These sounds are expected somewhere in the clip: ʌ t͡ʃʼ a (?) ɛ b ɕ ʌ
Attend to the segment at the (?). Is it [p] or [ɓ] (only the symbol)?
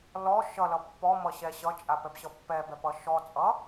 p